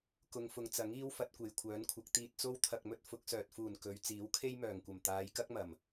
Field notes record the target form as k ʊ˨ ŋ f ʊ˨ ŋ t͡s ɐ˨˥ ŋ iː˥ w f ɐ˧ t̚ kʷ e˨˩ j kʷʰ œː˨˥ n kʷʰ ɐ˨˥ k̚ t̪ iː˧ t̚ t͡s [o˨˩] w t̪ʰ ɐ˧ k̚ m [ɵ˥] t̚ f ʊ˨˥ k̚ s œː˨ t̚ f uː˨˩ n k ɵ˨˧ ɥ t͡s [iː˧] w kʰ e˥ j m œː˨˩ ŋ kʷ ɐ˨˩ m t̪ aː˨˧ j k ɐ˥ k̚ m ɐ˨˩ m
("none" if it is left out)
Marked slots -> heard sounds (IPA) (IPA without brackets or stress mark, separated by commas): o˥, ɵ˥, iː˨˥